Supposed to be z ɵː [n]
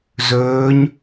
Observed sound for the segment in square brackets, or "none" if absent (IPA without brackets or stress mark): ɲ